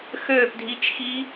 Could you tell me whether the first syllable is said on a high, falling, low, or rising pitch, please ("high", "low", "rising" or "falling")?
falling